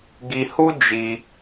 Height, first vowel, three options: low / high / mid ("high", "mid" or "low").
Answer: high